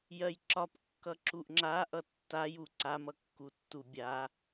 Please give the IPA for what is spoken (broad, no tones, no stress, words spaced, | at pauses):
jɜjǁɒp kːʌǁuʔŋ͡ǁa ʔʌtːaju ǀamʌkːu tːubʲa